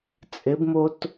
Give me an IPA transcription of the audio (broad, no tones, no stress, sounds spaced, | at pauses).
t͡sʼ ɪ b m o t